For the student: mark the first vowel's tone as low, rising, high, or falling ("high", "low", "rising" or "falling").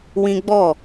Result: high